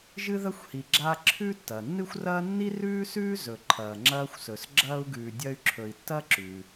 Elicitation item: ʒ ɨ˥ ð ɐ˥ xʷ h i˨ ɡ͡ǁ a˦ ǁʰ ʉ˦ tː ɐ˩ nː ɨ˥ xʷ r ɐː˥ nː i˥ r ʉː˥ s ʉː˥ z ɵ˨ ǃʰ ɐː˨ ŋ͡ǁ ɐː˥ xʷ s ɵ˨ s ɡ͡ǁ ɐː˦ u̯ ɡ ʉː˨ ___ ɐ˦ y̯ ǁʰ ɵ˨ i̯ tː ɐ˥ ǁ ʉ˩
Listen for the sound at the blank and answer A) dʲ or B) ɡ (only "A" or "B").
A